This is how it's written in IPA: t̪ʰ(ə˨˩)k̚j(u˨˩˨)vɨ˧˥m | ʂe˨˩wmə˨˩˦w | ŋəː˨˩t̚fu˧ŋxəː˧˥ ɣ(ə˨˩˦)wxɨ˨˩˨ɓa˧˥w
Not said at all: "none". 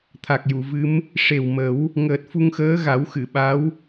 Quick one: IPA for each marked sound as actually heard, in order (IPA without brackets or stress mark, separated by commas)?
a˨˩, u˨˩˨, a˨˩˦